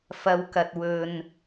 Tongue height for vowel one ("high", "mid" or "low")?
low